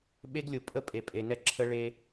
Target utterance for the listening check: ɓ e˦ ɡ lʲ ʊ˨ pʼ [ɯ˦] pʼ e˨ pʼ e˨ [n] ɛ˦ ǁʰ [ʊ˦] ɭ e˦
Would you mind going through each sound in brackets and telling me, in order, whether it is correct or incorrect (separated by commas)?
incorrect, correct, incorrect